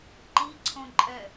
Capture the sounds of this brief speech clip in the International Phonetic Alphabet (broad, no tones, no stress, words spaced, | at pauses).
ǃiǀʰõǃʼɛ